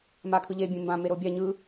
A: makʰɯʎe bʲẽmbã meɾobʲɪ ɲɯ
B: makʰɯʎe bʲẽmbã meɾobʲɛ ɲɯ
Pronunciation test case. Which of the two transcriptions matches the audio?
B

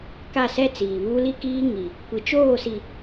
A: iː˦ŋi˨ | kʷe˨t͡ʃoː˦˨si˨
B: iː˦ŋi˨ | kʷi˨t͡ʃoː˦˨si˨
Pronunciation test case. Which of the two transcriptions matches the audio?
B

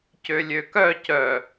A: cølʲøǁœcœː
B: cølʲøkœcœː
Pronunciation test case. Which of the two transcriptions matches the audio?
B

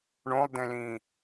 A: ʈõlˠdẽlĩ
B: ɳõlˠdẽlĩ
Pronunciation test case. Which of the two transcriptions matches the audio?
B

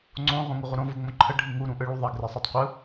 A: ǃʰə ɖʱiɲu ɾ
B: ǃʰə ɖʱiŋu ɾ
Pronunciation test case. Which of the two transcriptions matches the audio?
B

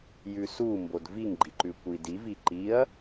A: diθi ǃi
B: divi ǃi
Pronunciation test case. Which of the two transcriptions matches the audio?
B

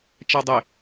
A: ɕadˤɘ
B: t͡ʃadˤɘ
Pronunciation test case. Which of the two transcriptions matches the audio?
B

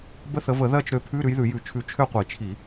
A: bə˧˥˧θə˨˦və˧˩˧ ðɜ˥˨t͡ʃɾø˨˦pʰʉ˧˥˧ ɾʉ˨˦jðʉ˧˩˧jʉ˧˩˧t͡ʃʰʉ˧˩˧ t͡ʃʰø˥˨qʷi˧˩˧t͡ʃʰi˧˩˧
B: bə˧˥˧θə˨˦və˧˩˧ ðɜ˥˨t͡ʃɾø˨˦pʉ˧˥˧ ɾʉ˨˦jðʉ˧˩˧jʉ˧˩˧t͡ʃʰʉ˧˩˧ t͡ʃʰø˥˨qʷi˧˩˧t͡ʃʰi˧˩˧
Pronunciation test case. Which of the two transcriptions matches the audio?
A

